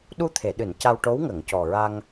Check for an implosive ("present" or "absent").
present